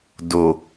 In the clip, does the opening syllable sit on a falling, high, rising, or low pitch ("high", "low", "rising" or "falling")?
low